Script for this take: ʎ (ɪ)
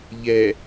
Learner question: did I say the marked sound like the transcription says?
no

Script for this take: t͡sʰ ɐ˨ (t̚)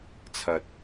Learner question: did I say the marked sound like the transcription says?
yes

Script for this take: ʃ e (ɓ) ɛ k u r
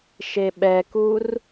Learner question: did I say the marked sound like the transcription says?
yes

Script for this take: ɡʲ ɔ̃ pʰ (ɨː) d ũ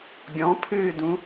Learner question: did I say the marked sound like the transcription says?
yes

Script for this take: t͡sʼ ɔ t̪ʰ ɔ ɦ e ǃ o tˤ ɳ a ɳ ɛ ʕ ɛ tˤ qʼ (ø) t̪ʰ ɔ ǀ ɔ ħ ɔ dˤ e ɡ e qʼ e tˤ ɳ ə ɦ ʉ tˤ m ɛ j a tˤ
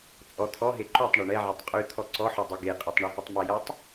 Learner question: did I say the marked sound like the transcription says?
no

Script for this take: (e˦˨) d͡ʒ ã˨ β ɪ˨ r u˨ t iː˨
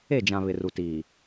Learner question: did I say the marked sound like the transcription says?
yes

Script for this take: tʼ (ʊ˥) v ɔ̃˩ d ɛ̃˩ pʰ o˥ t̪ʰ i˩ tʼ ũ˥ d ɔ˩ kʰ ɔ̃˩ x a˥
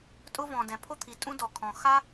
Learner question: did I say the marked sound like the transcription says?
yes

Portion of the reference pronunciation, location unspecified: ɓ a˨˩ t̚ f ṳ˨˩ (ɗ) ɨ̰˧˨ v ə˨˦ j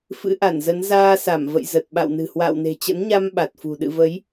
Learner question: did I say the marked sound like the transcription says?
yes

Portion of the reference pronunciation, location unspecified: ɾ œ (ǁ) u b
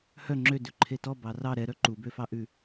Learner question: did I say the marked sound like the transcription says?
no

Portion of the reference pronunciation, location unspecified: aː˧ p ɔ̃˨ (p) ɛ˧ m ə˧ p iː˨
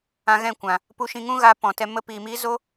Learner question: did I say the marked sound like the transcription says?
no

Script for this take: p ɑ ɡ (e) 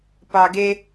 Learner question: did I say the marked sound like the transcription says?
yes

